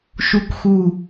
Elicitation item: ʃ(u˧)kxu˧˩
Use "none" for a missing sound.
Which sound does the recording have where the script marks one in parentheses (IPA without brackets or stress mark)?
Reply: u˧